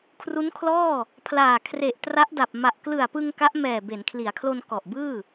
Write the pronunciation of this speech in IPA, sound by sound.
kʰ r u˦˥ n kʰ l ɔː˥˩ | pʰ l aː˨˩ kʰ r e˨˩ ʔ t r a˦˥ ʔ d a˨˩ p̚ m a˨˩ ʔ k l ɯ˨˩ a̯ p ɯ˧ ŋ k a˦˥ ʔ m ɛː˨˩ b e˩˦ n kʰ l i˩˦ a̯ kʰ l o˧ n k ɔ˨˩ ʔ b ɯː˥˩

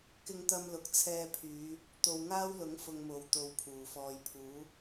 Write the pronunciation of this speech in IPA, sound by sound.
k ɪ˧ ŋ t̪ ɐ˧ m l ʊ˨ k̚ t͡sʰ ɛː˧ pʰ yː˨˧ | t̪ o˨ w ŋ aː˥ w l ʊ˨˥ ŋ f ʊ˧ ŋ m o˨˧ w t̪ o˧ w pʰ uː˨˩ f ɔː˧ j pʰ uː˨˥

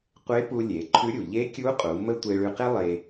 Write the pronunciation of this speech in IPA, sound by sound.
qʷ e˧˥ p u˧ lʲ e˩˧ ǃʰ ʉ˧˥ ɾʲ u˩ ʎ e˧˥ kʲ u˧˥ qʼ u˩˧ m ə˥ tʷ e˧ ɭ ʉ˧ q e˥ lˠ e˧

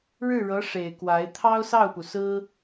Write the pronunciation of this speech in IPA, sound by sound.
ɻ ɻ̩˥˩ ɻ ɤ˧˥ ʂ e˨˩ ɪ̯ k w a˧˥ ɪ̯ t̪ʰ ɑ˥ ʊ̯ s ɑ˥˩ ʊ̯ p u˩ s ɹ̩˥

